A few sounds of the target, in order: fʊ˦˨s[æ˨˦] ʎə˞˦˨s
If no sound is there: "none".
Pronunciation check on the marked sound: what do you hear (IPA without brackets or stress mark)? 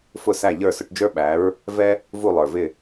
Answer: æ˦˨